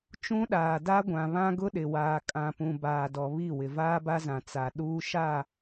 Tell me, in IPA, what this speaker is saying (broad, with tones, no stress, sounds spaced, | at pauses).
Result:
t͡ʃ ũ˦ ɗ aː˨ d a˦ ɡʷ ã˨ β ã˦ ɡ ʊ˦ ɗ ɪ˨ w aː˨ kʼ ã˨ p ũ˨ b aː˨ d ɔ˨ β i˦˨ w ɪ˨ v aː˦ b a˦ z ã˨ t͡s a˨ ɗ uː˦ ʃ a˦˨